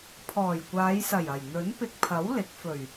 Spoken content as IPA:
pʰ ɔː˨˩ j kʷ aː˨˧ j s ɐ˨˩ j ɐ˨˩ j n̪ ɵ˨˥ n p ɪ˧ k̚ pʰ ɐ˨˥ w l ɪ˨˥ k̚ f ɵ˨˩ ɥ

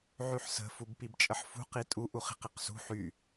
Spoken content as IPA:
ʕ y ħ s ə̤ f u b p i b t͡ʃʼ ə ħ f ṳ q i tʼ u ʔ u χ i̤ q i q s ṳ ħ y

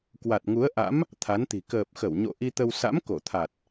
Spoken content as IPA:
k w a˨˩ t̚ ŋ u˨˦ ə̯ ʔ a̰˧˥ m | t̪ʰ a˨˦ n t̪ i̤˨˩ k əː˨˩ p̚ x ə˧˩ w ɲ o̰˧˨ ʔ i˧ t̪ ə˧ w s a̰˧˥ m k o˧˩ t̪ʰ a˨˩ t̚

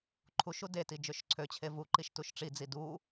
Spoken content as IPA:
ǃʰ u ʃ u d e t i d͡ʒ ø ʃ ǀʰ ø t͡ɕʰ e v u ǃ i ʃ t u ʃ ʈ͡ʂ i d͡z i d u

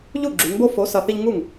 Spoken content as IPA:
ʎ u˥˩ ɡ͡ǁ y˩˧ ŋ b o˦ f o˨˥ s ɐ˧˩ θ i˦ ʎ ŋ u˥˩ ŋ

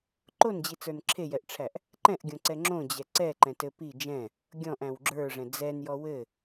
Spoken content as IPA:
ǃ o n d͡ʑ i t͡s ə˞ n ǁʰ e j ɛ ʔ ʈ͡ʂʰ æ ʔ | ǃ ɛ̃ ʔ ɡʲ õ ǀ ɛ ŋ͡ǁ õ d͡ʑ ɛ ǀ ɛ ǃ ɛ̃ t ɘ p i d͡ʒ ɛ̃ | ɡʲ ɔ̃ ʔ æ̃ w ɡ͡ǁ ə˞ ʐ ɛ̃ d͡z ɛ n j ɔ w ɘ

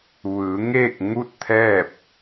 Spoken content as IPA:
ʋ ɯː˩˧ ŋ eː˥˨ k̚ ŋ u˥˨ t̚ t̪ʰ ɛː˥˨ p̚

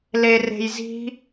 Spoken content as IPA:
l e r e̤ j z i̤

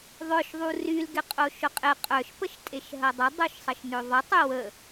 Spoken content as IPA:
ðˤ œ ʃ ðˤ u r y l ɡ ɪ qʼ o ʃ ʊ qʼ ɪ qʼ œ ʃ p ə ʃ tʼ e ʃ ɦ ɐ dˤ ʊ dˤ o ʃ sˤ ə ʃ n ø ðˤ ə tˤ ʏ w ə

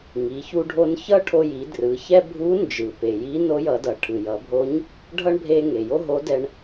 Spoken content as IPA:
ŋ i˩˧ ç u˧ ɖʱ o˧ n ç ʌ˥ ʈʰ o˧ j i˩˧ d r ɯ˩˧ ç ɛ˥ bʱ u˧˥ n d͡ʒ ɯ˩ p e˩ j i˧˥ n o˧˥ j ʌ˩˧ d ʌ˩ ʈʰ ɯ˩ j ʌ˩˧ bʱ o˧˥ ɲ | ɖʱ ʌ˥ ɳ bʱ e˧ ŋ e˩ j o˥ ɦ o˧˥ d ɛ˧ ɳ

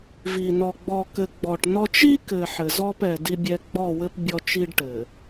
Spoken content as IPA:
v i˨ n ɔ˨ ɡ͡b ɔ˨ k ɘ˨ ɡ͡b ɔ˨ ʈ n ɔ˦ t͡ʃ i˦ k ɘ˨ ħ ɘ˨ z ɔ˦ p ɛ˨ d i˦ bʲ ɛ˦ ɡ͡b ɔ˦˨ w ɘ˦ p bʲ ɔ˦ t͡ʃ i˦ ɖ ʈ ɘ˨

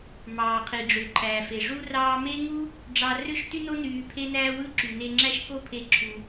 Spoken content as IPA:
m ɑː˩ qʰ i˩ ɖ͡ʐ ø˩ ǃʰ æː˩ f e˩ ʐ u˥ r ɑː˥ m e˥ ŋ u˥ | ɖ͡ʐ ɑ˧ r ø˥ ʃ t y˥ n o˥ n yː˧ pʰ e˥ n æː˥ w ɯ˥ ǁ y˩ n e˧ ŋ͡ǁ æ˥ ʃ k o˥ pʰ e˧ ǁʰ u˩

